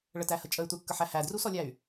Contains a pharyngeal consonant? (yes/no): yes